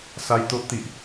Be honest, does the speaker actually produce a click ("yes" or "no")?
no